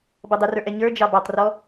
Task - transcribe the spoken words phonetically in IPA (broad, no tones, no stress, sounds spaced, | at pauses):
b ʌ dˤ ɪ r ə˞ ʔ ɛ ɲ ə˞ d͡ʒ ɑ b ɑ tˤ r ɔ